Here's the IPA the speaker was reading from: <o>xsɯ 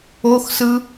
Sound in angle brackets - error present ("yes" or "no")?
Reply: no